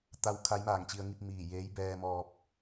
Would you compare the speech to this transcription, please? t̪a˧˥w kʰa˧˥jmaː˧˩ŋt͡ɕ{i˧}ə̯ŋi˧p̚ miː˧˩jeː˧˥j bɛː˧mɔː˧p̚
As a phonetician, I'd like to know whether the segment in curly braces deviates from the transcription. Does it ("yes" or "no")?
no